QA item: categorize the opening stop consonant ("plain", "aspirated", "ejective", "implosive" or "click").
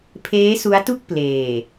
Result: aspirated